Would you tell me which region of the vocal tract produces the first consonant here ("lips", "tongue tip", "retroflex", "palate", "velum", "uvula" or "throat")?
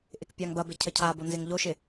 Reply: throat